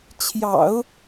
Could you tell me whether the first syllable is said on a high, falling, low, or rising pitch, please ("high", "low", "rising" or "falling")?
low